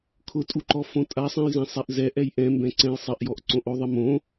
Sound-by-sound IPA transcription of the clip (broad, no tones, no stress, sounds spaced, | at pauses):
kʰ ʊ tʼ u ǃ ɔ f õ tʼ a sˤ ɛ̃ j z ɛ̃ sˤ ɛ ʔ z ɛ ʔ ɛ j ʔ ɛ̃ m b ɛ̃ ǀ ɛ̃ j sˤ ɪ ʔ j ɔ ʔ ǀ õ ʔ o ðˤ ɪ m õ